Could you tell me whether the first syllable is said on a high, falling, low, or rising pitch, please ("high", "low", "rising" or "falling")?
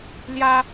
high